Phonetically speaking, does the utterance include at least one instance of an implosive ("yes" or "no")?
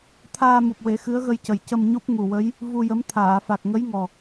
no